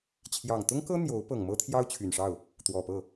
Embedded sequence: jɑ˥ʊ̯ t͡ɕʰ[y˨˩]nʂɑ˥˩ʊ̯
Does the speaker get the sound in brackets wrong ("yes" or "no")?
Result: no